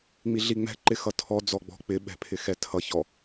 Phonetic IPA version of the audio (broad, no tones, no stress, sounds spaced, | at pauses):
ŋ͡m i ɮ i ŋ͡m ɛ̤ ǃ ɪ x ʌ tʰ ɔ d͡z ɔ ɡ͡b ɔ̤ k͡p ɪ ɓ ɛ̤ pʰ ɪ x ɛ tʰ ʌ ç ɔ